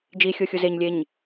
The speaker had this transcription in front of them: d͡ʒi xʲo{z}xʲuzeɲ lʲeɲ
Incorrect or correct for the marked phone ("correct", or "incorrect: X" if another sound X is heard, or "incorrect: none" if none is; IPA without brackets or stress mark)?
incorrect: none